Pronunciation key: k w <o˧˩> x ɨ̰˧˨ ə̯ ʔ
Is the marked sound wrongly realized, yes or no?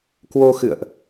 yes